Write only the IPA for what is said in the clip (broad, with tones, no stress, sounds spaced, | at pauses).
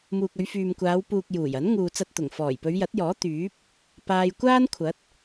m uː˨ k̚ ɵ˨˧ ɥ f yː˨ m kʷ aː˨˧ w p uː˨ k̚ j uː˨˩ j ɐ˨˥ n ŋ uː˨ t͡s ɐ˧ t̚ t̪ ʊ˨˩ ŋ f ɔː˨˩ j p ɵ˨˧ ɥ j ɐ˨˥ t̚ j ɔː˨˥ t̪ yː˨˥ p̚ | p aː˧ j kʷ aː˥ n kʷʰ ɐ˨˥ t̚